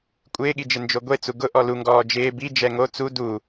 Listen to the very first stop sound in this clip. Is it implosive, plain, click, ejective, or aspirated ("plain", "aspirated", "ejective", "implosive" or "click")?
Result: ejective